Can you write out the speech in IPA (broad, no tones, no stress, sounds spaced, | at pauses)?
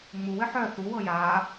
ŋ͡m u w ɘ ħ œ θ u w ɤ j a